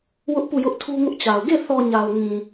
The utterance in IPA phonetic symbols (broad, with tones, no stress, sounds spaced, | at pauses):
w ʊ˦ ʔ p u˦˨ j ʊ˦ ʔ tʰ u˦ ŋ ʊ˦ ʔ t͡ɕ a˨ ʊ̯ ɡ e˦˨ θ ɔ˨ ɲ a˨ ʊ̯ ŋ ĩ˨